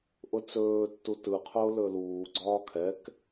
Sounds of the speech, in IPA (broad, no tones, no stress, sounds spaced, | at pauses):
ʔ ʊ t͡s ɵː tː u t ɯ qʰ ʊː l ɵ l uː ɡ͡ǀ ɒː kʰ ɛ k